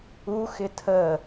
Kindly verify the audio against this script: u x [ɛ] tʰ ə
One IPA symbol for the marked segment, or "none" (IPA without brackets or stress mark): ɪ